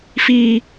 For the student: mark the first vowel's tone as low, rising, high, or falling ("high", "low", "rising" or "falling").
high